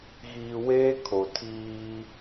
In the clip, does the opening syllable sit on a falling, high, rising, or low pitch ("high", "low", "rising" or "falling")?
low